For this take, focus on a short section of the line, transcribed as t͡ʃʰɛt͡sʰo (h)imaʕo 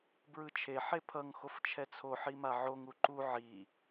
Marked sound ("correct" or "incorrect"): incorrect